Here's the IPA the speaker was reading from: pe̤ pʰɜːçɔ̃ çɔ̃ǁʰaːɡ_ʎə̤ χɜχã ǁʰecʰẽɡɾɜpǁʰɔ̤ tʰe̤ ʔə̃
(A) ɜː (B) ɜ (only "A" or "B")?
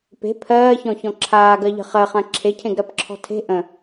B